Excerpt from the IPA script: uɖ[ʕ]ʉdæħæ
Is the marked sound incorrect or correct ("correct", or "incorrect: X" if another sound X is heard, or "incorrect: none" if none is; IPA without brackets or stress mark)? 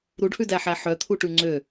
incorrect: h